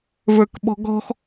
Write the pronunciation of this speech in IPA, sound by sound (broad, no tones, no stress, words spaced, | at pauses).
və˞kɓɔ̤ɡɔ̤x